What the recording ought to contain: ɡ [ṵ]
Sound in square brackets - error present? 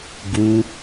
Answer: yes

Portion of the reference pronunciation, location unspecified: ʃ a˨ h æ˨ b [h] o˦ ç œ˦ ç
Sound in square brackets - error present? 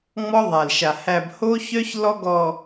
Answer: no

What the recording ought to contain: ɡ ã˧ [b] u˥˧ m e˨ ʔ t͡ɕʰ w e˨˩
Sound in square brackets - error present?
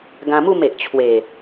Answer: yes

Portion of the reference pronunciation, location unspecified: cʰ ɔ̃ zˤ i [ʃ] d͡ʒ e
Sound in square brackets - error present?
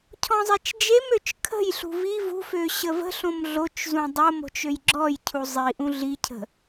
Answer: yes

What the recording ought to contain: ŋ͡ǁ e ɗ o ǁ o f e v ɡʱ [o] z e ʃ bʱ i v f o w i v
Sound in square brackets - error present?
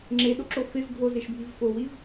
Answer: no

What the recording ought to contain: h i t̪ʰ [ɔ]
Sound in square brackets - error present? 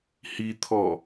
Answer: no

